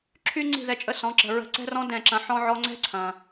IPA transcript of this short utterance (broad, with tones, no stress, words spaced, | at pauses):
ǁʰy˦ ŋ͡ǀi̤˦˨ðɛ˧t͡ʃʼə˧ sɔ̃˨˦ǁə̤˨ ɹə̤˧ ǀɛ̤˦rɔ̃˦ dɛ̃˦˨ǁɐ̃˧ ħɔ̃˧ʕɔ˧ŋ͡ǀɛ̤˦ ǀʰɐ̃˨